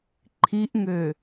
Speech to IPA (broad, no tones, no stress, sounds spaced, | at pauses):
ǃʰ i ʔ ŋ ø